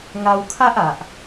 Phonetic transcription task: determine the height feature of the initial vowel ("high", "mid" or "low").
low